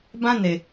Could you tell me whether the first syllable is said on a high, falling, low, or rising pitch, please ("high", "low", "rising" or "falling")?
high